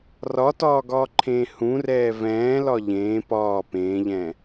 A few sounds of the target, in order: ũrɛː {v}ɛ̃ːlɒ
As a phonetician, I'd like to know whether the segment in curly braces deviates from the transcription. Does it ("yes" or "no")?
no